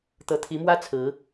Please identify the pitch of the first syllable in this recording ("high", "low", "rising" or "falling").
rising